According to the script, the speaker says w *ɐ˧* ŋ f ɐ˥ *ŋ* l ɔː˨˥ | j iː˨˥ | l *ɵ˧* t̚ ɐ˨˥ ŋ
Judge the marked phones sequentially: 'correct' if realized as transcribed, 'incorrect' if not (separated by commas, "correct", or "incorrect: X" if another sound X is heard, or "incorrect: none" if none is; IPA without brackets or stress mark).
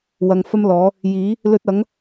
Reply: incorrect: ɐ˨, incorrect: m, correct